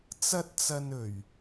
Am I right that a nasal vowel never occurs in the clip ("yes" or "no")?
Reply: yes